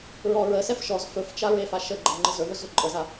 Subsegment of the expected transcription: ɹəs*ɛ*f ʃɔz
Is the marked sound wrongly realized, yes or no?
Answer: no